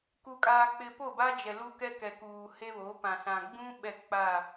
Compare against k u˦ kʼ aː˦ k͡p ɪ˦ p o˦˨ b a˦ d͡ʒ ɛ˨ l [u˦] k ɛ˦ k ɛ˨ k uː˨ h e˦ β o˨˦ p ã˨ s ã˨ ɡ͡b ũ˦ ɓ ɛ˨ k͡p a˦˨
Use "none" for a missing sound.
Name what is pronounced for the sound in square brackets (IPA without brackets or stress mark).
u˦